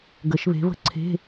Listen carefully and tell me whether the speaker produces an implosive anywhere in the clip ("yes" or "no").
no